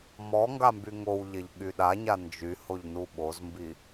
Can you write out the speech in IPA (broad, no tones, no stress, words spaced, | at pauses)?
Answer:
mɔ ŋɡambyŋowʎeʎ ɠyɗaɲa nd͡ʒyhoʎ nuɓozmbi